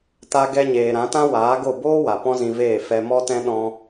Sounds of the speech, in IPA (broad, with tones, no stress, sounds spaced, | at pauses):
t a˧ ɡ ɛ˧ ɲ eː˨ ɾ ã˨˦ t ã˦ w aː˨˦ ɡ o˦˨ b oː˦ w a˨ p ɔ̃˦ z ĩ˧ v eː˦˨ f ɛ˧ m ɔ˦ t ɛ̃˦ ɗ ɔ̃˦